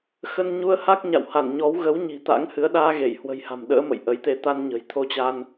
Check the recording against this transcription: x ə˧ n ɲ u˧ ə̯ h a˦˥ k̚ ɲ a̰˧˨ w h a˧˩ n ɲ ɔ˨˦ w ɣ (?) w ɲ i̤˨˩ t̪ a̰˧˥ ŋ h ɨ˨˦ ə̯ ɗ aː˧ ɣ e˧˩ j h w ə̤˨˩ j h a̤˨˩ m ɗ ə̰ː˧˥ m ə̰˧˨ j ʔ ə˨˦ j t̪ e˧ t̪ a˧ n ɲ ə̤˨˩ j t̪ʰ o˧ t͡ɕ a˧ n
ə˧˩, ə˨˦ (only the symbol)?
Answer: ə˨˦